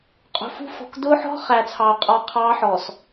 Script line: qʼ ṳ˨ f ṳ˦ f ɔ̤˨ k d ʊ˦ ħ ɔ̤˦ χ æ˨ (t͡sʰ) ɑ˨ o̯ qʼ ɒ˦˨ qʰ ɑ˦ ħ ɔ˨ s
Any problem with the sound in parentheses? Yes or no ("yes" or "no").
no